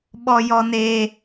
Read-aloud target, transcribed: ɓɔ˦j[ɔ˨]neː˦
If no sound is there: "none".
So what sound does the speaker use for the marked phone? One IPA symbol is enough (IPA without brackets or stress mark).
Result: ɔ˦